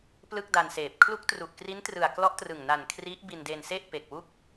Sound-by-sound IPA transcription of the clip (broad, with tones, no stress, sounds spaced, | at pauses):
p l ɯ˥˩ k̚ d a˧ n s eː˨˩ p̚ kʰ l u˦˥ k̚ t r u˨˩ ʔ k r i˦˥ n t r ɯ˨˩ a̯ k l ɔ˦˥ ʔ t r ɯ˨˩ ŋ n a˨˩ n kʰ r i˦˥ ʔ b i˧ n d e˧ n s e˥˩ ʔ p e˨˩ k̚ w u˦˥ k̚